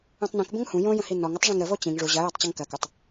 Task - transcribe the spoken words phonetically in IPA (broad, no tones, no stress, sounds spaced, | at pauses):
ũ tˤ n ĩ k b ə̃ ŋ h ũ j õ j ə̃ h i n ɔ ŋ ə tˤ ʐ ĩ ŋ ɾ ə v o t͡ɕ ĩ ŋ ʐ u ʑ ɐ j ɜ tˤ t͡ɕ ɐ ŋ k ɜ k u tˤ